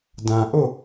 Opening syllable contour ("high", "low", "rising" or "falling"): low